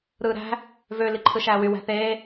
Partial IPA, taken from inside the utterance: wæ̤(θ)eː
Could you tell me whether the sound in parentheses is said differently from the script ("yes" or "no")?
no